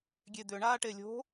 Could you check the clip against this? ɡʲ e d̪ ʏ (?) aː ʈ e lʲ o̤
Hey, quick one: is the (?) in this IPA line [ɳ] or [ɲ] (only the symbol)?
ɳ